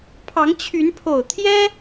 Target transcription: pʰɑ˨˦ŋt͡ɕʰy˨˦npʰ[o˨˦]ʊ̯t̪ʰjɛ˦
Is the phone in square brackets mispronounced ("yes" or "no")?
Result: yes